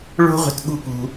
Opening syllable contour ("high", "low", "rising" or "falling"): high